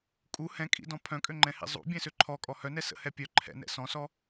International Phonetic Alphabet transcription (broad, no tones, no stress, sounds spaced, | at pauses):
kʼ u h ɛ̃ kʼ ḭ d ɔ̃ pʰ œ̃ kʼ ø ŋ͡ǃ ɛ̃ h ḭ zˤ ṵ bʲ ɛ̃ s ø ǃʰ ɔ kʼ ɔ h œ n ɛ s ə̰ h ɛ pʲ œ ǃʰ ɛ̰ n ɛ̰ s ɔ̃ s ɔ